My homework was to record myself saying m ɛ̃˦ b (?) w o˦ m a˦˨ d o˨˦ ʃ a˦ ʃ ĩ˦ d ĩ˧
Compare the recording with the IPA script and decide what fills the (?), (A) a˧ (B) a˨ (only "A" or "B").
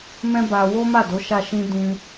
A